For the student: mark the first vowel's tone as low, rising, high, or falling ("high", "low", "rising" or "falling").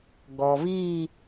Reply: low